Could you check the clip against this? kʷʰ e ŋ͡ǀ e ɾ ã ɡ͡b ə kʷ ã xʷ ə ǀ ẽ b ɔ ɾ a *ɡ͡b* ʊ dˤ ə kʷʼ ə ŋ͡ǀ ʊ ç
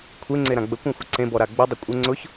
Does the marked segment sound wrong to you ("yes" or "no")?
no